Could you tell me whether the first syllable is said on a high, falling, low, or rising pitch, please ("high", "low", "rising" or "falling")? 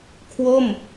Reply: falling